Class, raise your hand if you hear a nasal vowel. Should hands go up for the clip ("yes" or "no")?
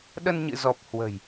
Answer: no